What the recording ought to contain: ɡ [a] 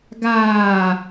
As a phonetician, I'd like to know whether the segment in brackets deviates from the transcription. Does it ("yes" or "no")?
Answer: yes